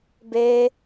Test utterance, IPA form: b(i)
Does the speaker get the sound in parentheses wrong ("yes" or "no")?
yes